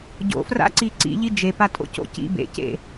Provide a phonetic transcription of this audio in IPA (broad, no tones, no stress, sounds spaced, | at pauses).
ɟ o̰ f r a̰ ǀ i ǀ ḭ ʎ i d͡ʒ e p a tʼ o̰ c o̰ c ḭ b ḛ c ḛ